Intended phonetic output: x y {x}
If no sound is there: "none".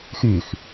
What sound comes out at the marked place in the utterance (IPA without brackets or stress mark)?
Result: x